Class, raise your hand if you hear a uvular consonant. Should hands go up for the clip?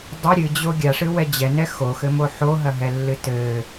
no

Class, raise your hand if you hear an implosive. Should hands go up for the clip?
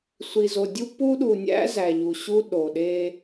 yes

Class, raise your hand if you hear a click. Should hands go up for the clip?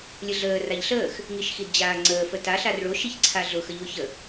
yes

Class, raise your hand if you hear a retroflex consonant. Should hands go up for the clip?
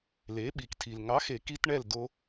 yes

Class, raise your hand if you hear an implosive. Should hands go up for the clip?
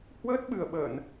yes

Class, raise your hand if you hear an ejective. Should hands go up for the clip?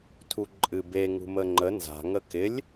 yes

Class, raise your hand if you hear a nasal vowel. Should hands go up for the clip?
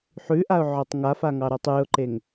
no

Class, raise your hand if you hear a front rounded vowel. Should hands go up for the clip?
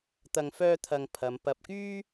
yes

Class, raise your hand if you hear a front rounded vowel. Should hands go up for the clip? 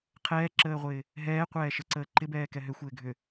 yes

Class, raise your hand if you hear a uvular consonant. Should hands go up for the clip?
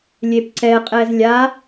yes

